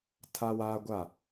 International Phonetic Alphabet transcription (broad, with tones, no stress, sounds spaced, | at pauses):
tʰ a˦ w aː˦ ɡʷ a˦˨